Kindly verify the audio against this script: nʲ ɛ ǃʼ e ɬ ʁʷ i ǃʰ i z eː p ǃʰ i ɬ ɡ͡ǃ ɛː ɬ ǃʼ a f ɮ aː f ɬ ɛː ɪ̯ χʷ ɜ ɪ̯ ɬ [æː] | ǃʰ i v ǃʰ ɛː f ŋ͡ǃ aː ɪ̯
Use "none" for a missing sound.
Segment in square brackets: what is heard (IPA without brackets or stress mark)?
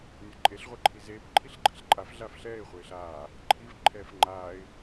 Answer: aː